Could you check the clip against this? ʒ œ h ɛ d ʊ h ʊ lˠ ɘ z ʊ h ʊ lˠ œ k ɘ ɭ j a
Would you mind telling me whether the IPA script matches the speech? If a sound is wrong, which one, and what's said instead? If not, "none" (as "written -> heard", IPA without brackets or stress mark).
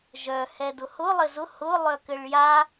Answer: none